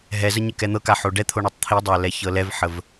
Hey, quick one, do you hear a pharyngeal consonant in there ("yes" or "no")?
yes